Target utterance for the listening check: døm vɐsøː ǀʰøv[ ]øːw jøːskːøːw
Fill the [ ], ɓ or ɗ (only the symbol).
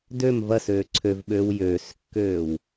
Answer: ɓ